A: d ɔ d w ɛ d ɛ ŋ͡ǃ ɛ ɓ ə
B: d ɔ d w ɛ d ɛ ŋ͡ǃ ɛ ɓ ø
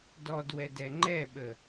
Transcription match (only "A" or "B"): A